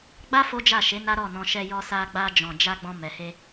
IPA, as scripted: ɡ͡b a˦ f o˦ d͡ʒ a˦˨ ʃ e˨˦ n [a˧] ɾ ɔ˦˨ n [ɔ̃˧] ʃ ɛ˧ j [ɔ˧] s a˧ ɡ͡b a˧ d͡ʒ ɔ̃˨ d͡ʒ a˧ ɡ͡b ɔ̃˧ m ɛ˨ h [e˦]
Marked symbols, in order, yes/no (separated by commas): no, yes, yes, no